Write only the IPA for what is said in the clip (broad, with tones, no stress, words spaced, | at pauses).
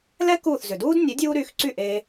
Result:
lɛ˥ kuː˥˩θzʏ˩ duː˥dnʲe˩˥ dʲuː˥ ɾy˧xǀy˥˩ʔe˧